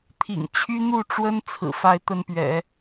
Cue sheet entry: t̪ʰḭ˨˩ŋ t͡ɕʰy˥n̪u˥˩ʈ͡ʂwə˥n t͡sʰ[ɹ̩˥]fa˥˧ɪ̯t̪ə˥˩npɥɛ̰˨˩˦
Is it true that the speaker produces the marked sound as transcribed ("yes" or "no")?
no